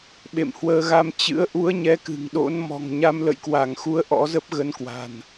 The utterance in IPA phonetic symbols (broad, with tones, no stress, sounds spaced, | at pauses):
ɓ ḛ˧˨ m h w əː˧ ɣ a˧ m t͡ɕ ɨ̰˧˥ ə̯ ʔ u˨˦ ə̯ ɲ ɛ˨˦ k ɨ̤˨˩ ŋ ɗ o̰˧˥ n m ɔ̤˨˩ ŋ ɲ a˧ m l ə̰˧˨ j k w a˧˩ ŋ x u˨˦ ə̯ ʔ ɔ̰˧˥ z ə˦˥ p̚ ɣ ə˨˦ n k w a̤˨˩ n